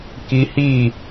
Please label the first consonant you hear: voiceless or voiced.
voiceless